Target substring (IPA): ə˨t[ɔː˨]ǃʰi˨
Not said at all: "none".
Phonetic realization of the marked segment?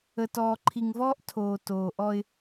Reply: ɔː˨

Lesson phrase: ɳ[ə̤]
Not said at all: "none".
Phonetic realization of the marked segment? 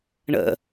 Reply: ə̰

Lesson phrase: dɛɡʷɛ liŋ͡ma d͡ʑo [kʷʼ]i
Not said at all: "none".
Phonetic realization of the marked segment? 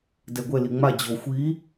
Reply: xʷ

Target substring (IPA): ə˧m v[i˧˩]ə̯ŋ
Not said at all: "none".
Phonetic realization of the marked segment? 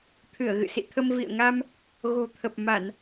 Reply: ḭ˧˨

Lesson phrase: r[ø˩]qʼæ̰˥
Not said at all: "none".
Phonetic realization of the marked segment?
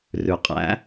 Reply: ʉ˩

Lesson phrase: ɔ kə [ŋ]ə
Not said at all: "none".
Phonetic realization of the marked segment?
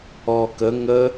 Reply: ŋ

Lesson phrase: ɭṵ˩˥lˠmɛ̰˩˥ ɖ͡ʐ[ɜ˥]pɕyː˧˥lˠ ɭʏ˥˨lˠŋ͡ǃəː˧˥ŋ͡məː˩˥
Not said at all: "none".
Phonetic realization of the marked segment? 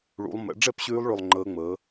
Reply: ɛ˥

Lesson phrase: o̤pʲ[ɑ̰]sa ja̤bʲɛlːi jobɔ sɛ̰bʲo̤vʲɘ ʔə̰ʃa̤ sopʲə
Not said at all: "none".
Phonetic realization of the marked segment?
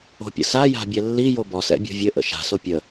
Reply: ə̰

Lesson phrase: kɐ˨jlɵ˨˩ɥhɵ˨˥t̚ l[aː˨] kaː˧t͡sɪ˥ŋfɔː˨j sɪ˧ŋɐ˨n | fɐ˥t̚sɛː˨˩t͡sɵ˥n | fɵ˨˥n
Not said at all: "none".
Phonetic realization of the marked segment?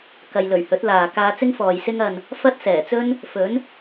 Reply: aː˨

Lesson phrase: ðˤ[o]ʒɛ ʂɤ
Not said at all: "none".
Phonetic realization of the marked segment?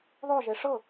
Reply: o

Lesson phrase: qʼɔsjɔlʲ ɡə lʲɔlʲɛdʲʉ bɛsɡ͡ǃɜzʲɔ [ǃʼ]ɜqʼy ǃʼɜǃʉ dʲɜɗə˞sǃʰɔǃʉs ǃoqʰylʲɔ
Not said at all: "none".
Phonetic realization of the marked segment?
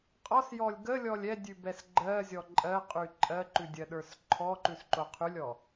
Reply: ǃʼ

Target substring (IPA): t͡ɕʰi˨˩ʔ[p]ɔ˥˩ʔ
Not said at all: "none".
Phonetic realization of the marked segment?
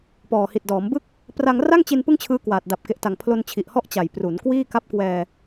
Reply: h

